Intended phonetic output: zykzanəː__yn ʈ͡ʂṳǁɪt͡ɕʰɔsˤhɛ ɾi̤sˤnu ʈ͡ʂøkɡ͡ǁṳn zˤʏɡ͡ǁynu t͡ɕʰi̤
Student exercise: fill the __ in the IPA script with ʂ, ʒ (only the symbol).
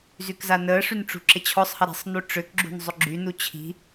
ʂ